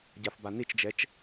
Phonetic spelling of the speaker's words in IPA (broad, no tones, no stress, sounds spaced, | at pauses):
ɟ a f b a n i t͡ʃ d͡ʒ ɛ t͡ʃ